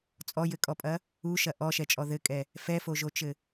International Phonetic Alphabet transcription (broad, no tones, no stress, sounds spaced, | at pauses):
t͡sʼ ɔ j ɘ kʼ ɔ pʼ ɐ | u ʃ ɐ ʔ ɔ ʃ ɛ t͡ʃʼ ɔ ð ɘ kʼ ɛ | f ɛ f o ʒ o t͡ʃ ɘ